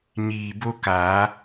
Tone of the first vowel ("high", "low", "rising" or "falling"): low